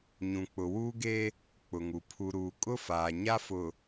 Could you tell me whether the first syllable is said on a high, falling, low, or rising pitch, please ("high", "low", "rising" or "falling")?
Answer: low